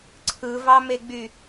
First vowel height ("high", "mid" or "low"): high